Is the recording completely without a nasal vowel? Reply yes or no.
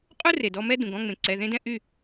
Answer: no